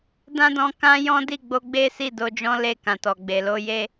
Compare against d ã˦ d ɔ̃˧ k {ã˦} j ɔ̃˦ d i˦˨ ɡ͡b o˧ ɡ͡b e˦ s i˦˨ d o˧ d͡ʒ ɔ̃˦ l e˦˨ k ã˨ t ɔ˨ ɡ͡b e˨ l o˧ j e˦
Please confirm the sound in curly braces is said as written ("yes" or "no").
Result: yes